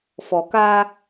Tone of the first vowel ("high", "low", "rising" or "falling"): low